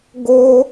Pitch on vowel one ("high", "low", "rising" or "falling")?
high